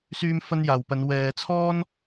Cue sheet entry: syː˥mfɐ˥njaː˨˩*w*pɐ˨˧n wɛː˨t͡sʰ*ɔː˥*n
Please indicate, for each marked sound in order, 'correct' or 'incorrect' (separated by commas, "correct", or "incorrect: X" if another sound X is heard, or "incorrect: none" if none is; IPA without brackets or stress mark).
correct, correct